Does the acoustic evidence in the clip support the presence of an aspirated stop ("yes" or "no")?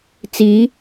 no